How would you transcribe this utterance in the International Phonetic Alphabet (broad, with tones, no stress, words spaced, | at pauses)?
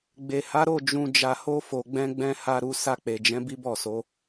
ɡ͡be˨ha˨˦ɾo˦˨ d͡ʒũ˧ d͡ʒa˧ho˦fo˧ ɡ͡bɛ̃˧ ɡ͡bɛ̃˦ ha˦ ɾu˧ sa˧k͡pe˨d͡ʒɛ̃˨˦ bi˦bɔ˦˨so˨˦